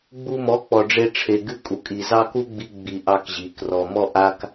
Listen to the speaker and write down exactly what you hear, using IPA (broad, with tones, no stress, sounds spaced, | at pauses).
ɡ͡b u˧ m ɔ˨˦ k͡p ɔ˨ ɖ͡ʐ e˧ ʈ͡ʂʰ e˨ ɡ ɨ˧ kʼ u˨ kʼ i˨ z ɑ˦ k u˦ ɡ͡b i˧ ɡ͡b i˨ ʔ ɑ˦ k ʑ i˨˦ k r ɔ˨ m ɔ˦ ʔ a˦ k